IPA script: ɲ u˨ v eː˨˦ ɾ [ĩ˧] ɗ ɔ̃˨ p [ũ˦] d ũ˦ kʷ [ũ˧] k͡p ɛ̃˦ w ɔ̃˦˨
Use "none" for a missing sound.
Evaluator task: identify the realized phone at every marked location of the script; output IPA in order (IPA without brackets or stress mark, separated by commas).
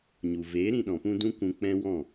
ĩ˧, ũ˧, ũ˧